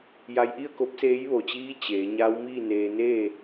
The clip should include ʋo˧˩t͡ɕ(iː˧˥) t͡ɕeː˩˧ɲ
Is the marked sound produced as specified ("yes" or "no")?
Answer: yes